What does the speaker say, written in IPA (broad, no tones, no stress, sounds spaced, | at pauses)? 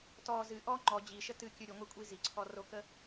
t ɔ z ɨ ʔ ɔ ŋ͡ǃ ɔ d͡ʑ i ʃ ə t ɨ kʲ ɨ ɾʲ ɯ ŋʷ ɛ kʷʼ i z i ǀʰ ɔ r o k ə